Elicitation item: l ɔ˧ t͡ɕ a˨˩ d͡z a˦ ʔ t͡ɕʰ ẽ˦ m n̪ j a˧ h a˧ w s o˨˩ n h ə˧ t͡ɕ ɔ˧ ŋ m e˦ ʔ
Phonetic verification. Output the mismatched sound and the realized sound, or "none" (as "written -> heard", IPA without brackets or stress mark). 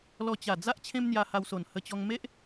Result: none